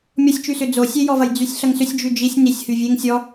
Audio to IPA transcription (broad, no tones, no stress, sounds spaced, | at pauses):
mʲ ɔ sʲ t͡ʃ y s ʏ d͡z o sʲ e j ɔ v ɐ j d͡z y sʲ ɬ ɐ ŋ s ʏ sʲ d͡ʒ y d͡ʒ i sʲ n i sʲ h y vʲ e ŋ sʲ ɔ